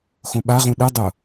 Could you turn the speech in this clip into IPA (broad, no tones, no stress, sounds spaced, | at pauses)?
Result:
x õ ɓ a ʁ ũ ɗ ɨ dˤ ʊ